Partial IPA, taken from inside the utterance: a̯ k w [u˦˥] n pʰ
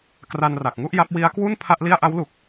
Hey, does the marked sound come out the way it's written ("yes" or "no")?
no